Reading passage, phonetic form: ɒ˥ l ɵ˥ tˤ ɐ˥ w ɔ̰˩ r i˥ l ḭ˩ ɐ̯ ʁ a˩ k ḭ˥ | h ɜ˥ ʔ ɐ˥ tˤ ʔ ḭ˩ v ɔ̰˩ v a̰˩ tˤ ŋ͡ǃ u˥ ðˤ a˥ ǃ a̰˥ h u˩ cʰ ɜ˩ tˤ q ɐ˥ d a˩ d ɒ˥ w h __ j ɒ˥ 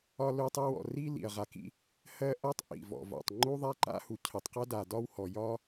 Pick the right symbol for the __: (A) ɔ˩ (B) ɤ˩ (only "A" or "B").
A